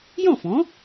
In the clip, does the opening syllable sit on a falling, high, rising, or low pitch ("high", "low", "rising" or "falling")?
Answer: falling